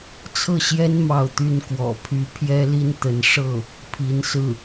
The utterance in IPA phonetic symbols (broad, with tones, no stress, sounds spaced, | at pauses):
t͡sʰ ɤ˥˩ ɕ j ɛ˥ n m ɑ˥˩ ʊ̯ t̪ y˥ n k w ɔ̰˨˩ pʰ y˧˥ pʰ j ɛ˥ l i˥ n t̪ ə˧˥ n ʂ ɤ˥˩ | pʰ i˧˥ n s ɹ̩˥˩